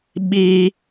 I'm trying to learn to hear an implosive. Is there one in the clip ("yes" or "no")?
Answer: yes